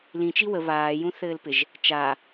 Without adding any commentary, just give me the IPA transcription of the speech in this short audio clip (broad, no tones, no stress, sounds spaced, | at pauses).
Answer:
l ĩ t͡ʃ i w ə β aː j ũ θ ɘː l p ɪ ʒ | t͡ʃ a